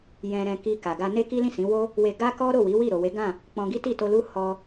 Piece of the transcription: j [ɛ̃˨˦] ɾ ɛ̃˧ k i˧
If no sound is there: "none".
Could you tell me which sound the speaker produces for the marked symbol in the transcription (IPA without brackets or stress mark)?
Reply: ɛ̃˧